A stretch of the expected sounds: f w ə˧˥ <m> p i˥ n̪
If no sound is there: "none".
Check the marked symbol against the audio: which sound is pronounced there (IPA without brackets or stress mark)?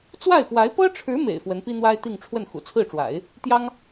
n